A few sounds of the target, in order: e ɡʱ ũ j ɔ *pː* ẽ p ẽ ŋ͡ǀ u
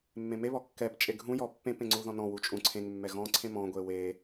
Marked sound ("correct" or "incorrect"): correct